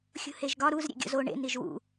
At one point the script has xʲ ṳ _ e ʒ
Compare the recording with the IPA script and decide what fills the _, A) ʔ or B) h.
B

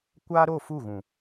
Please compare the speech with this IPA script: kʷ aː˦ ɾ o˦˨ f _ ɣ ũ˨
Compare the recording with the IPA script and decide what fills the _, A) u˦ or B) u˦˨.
B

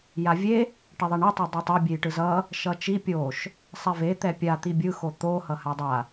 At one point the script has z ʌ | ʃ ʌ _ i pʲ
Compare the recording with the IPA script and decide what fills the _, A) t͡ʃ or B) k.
A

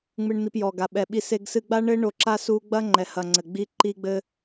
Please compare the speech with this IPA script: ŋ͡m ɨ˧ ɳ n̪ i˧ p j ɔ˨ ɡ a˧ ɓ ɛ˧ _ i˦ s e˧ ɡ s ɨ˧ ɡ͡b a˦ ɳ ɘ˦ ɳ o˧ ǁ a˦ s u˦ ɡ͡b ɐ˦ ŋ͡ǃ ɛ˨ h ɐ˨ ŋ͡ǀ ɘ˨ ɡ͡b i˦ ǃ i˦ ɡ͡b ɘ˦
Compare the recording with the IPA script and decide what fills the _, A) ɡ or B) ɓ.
B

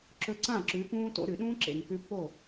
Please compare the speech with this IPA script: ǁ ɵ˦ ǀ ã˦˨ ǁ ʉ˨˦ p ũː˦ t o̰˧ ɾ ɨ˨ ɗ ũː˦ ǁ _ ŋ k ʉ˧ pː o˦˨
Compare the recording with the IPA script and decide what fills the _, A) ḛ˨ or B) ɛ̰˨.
A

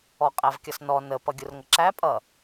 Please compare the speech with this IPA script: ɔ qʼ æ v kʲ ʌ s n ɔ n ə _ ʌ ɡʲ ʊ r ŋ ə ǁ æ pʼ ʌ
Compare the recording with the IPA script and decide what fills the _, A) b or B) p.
B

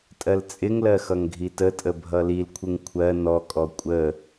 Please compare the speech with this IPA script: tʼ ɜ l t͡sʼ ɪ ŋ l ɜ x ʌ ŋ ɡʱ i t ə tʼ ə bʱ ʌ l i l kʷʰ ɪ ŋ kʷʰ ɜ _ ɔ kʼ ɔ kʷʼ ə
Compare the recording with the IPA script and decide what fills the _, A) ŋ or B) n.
B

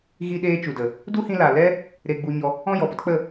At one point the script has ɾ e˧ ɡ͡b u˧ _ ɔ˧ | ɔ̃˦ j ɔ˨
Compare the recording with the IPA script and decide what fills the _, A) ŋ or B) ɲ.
B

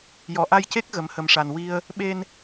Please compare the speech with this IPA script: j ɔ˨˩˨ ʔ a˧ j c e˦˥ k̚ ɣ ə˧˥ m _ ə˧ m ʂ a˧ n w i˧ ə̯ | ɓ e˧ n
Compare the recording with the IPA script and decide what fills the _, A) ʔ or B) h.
B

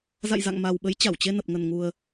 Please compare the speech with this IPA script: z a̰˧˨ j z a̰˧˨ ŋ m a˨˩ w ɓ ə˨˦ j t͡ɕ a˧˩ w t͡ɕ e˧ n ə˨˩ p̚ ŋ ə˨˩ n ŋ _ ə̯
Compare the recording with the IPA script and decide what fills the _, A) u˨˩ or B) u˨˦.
A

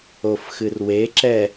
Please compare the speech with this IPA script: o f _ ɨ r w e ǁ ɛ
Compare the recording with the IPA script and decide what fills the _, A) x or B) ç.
A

